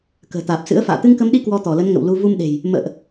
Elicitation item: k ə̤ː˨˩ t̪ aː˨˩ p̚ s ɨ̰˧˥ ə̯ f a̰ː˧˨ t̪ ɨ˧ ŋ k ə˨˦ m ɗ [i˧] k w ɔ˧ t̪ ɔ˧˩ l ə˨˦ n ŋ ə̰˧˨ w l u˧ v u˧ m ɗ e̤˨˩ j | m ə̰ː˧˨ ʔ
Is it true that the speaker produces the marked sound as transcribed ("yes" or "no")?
yes